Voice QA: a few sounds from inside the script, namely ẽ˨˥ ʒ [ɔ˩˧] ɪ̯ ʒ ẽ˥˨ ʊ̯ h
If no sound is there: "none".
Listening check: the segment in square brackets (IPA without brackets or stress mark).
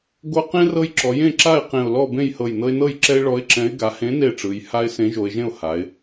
o˩˧